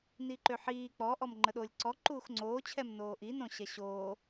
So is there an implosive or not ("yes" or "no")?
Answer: yes